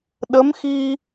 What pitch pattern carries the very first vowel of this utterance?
rising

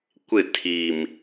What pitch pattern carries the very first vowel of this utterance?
falling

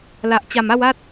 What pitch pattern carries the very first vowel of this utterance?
low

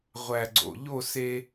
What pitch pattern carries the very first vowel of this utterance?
low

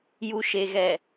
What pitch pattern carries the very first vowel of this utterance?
low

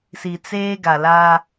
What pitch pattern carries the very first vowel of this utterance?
low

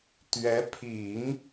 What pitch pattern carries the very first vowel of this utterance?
rising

